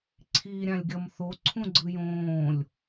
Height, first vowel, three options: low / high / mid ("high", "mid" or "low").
high